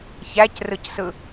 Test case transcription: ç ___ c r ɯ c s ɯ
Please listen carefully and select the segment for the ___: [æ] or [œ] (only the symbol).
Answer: æ